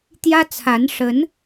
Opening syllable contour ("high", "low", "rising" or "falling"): high